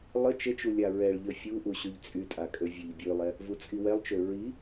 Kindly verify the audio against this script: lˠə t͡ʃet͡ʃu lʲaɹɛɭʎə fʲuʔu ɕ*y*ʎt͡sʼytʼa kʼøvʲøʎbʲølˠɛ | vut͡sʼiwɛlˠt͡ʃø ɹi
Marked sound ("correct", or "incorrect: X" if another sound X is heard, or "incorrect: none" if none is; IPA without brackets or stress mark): correct